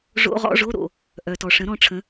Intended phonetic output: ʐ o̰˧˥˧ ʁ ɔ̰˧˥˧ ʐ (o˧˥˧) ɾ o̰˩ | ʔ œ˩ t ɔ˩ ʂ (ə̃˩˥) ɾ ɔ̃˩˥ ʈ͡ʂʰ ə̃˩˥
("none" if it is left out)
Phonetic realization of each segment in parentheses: o˧˥˧, ə̃˩˥

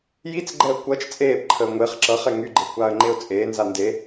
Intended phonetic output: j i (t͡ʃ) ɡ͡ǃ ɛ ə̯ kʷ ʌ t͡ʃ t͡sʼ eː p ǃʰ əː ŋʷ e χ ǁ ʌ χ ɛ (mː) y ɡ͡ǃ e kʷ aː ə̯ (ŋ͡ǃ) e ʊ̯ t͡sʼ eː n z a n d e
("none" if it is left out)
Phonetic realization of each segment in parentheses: t͡s, ŋ, ŋ͡ǃ

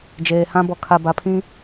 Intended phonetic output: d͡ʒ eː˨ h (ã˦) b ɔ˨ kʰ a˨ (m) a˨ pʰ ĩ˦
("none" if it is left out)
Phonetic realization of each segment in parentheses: ã˦, b

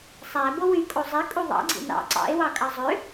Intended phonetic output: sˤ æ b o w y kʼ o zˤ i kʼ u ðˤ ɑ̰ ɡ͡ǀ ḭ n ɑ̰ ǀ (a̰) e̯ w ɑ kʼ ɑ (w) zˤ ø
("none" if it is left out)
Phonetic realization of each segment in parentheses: ɑ̰, none

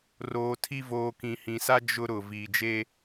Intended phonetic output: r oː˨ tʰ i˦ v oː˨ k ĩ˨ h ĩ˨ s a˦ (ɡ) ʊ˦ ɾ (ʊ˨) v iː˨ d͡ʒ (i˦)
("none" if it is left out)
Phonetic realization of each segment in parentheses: d͡ʒ, ʊ˨, e˦

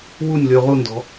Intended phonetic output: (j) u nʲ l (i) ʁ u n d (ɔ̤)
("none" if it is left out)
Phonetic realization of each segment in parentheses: w, y, ɔ̤

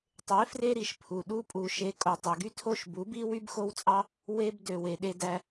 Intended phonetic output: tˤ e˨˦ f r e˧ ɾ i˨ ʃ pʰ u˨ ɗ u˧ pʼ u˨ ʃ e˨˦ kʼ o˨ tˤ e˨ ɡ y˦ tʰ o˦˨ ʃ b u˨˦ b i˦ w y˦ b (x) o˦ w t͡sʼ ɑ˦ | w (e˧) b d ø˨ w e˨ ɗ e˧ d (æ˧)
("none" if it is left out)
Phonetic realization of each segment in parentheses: x, e˧, æ˧

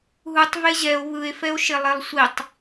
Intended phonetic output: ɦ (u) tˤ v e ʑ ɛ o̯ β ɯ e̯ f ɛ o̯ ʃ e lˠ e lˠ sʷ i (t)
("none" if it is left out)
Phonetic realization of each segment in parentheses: u, tˤ

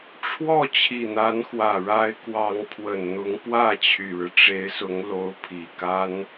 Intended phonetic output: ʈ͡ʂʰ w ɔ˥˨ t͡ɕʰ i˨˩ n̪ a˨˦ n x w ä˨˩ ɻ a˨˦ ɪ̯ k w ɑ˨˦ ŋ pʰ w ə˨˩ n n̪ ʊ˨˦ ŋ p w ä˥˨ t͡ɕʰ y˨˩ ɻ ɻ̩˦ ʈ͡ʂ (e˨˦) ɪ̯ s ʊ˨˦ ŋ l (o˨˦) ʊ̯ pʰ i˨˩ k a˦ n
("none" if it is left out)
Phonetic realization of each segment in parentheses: e˨˦, o˨˦

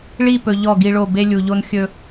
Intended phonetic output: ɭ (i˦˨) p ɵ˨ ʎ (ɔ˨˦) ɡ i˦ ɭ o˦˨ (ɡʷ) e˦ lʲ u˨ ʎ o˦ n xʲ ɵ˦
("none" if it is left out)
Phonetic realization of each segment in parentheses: i˦˨, ɔ˦˨, b

